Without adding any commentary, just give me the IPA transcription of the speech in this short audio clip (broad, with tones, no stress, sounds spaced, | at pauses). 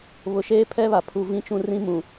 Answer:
β ʊ˨ ʃ eː˦ pʰ ɛ˦ β a˨ pʰ u˨ v ĩ˦ t͡ʃ ũ˦ r ĩ˦ m ũ˨